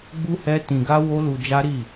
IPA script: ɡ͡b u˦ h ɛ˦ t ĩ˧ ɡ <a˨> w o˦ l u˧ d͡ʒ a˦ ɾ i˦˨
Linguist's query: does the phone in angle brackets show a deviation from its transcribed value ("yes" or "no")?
yes